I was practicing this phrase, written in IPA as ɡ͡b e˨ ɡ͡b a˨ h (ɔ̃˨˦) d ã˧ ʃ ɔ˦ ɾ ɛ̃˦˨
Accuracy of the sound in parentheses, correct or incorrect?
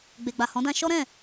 correct